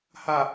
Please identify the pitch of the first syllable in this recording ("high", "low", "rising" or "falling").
falling